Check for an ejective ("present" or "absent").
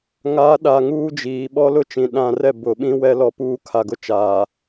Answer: absent